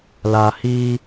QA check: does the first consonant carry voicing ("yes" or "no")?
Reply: yes